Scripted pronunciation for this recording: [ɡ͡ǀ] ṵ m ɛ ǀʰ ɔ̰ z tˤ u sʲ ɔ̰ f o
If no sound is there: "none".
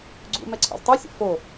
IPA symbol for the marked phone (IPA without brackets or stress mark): ɡ͡ǀ